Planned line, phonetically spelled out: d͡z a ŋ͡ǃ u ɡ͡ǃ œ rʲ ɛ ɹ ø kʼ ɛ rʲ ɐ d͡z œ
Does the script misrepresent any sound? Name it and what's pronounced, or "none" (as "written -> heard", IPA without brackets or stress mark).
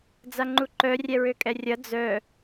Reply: ɡ͡ǃ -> ǃ